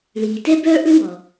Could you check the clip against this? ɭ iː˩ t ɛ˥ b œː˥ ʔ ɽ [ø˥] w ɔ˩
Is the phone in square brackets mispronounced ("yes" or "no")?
no